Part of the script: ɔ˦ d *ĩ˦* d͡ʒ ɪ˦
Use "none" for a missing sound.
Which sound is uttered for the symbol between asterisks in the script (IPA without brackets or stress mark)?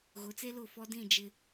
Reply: ĩ˦˨